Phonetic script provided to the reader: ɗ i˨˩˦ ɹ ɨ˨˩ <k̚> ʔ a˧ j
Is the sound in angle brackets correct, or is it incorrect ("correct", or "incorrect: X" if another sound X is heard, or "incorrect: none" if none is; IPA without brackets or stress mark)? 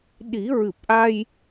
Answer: incorrect: p̚